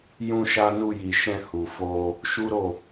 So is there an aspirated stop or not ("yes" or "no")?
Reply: no